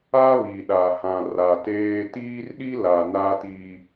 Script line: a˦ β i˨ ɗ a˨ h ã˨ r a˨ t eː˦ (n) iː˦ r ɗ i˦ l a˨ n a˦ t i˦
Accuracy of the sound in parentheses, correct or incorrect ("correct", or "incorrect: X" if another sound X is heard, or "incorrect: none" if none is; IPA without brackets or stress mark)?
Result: incorrect: t